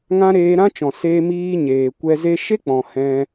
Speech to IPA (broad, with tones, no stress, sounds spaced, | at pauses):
ŋ ã˦ ɾ eː˧ ɾ ã˦ t͡ʃ ɔ̃˨ s eː˧ m iː˧ ɲ eː˨ kʷ ɛ˧ z e˦ ʃ e˦ k͡p ɔ̃˨ h ɛ̃˧